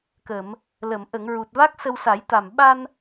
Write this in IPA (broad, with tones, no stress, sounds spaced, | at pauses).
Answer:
k ə˨˩˨ m | l ə˨˩˨ m ʔ ə˨˩˨ ŋ ɹ u˨˩ t̚ v a˦˥ k̚ s ə˧ w s a˨˩˦ j t̪ a˨˩ m ɓ a˧ n